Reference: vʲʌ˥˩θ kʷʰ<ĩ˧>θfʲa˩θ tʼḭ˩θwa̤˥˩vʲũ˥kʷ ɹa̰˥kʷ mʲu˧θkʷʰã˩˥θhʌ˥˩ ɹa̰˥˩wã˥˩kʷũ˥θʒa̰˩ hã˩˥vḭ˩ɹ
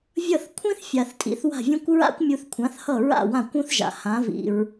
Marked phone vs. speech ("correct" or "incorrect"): incorrect